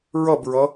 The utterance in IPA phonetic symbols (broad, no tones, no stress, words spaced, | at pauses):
ɹʌbɹʌ